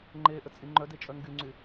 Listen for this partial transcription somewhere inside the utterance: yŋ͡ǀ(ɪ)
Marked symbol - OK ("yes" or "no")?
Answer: no